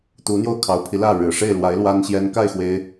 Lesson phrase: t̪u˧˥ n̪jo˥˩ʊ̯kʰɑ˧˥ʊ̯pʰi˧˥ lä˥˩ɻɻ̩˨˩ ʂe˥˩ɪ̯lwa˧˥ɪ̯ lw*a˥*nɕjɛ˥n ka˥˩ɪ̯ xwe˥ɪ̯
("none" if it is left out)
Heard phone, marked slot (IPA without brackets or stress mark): a˥